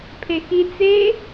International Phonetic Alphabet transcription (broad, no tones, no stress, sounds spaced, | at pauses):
pʰ e x i t͡s e